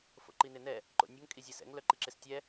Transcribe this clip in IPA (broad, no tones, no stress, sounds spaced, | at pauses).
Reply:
f o̰ ǃ i n ɪ n ɛ | ǃ o̰ nʲ ʊ ŋ kʼ i zʲ ɛ s ɛ̰ ŋ l œ ǃ i ǁ ɪ s tʲ ɛ